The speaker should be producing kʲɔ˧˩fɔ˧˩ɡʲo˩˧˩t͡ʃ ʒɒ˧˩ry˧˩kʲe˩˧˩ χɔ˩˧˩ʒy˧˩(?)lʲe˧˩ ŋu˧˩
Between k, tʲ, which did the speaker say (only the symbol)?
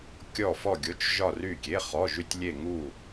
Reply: tʲ